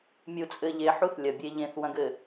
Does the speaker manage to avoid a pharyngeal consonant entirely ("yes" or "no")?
no